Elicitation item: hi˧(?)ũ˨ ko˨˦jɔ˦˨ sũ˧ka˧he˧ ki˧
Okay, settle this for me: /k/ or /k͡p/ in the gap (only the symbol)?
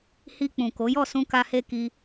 k͡p